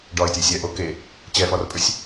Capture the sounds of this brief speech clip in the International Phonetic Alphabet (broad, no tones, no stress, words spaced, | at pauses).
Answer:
ɖɒɪ̯tʲesʲ ɛʔo ke | t͡ɕɛfɒrpʼʏsʲ